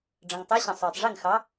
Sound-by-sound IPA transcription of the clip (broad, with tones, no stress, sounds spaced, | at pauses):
ɖ͡ʐ ə̃˩ ŋ tˤ e˨˥ ɕ ə̃˩ sˤ uː˩ tˤ ʐ i˥˩ ŋ x ɑ˨˥